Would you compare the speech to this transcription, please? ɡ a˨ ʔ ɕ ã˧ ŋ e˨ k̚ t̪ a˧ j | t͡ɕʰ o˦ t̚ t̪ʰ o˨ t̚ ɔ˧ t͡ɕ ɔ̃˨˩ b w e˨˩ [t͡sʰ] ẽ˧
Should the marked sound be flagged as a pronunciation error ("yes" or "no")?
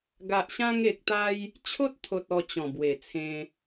no